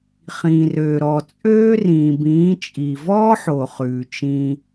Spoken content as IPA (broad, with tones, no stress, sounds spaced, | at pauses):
χ ĩː˨ r øː˨ ɾ ɔ˨ t͡sʼ øː˦ r ĩː˨ b ĩː˨˦ t͡ʃʼ i˨ v ɔː˦ ħ o˨ χ ʉː˨ t͡ʃ ĩː˧